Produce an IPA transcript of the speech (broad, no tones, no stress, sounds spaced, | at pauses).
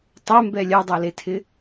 tˤ ɛ m b ɛ lʲ a dˤ a l e tʰ ɪ